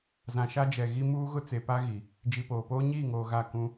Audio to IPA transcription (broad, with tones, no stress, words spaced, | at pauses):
zã˨ʃa˦d͡ʒɛ˨ ɣi˦ muː˦ ɣʊ˦t͡se˨pa˦ɣi˨ | d͡ʒi˨poː˨poː˦ ɲiː˦˨ŋoː˨ ɣa˦˨ kũ˦